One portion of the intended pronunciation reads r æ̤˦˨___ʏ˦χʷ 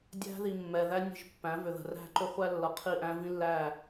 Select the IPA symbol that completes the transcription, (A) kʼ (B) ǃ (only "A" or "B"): B